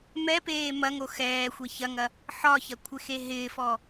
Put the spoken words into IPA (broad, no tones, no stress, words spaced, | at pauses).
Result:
mɛpeː mɐŋo xɛːxʷe çɐŋɐ | ħɒçɐkʷʰɪxe ɦɪːfɔ